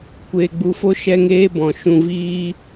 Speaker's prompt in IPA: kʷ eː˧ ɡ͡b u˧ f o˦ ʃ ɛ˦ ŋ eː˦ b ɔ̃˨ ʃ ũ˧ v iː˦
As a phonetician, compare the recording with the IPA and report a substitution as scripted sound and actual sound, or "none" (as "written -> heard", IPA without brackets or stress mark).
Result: none